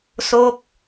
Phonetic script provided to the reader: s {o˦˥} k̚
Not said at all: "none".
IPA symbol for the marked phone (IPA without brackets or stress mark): o˦˥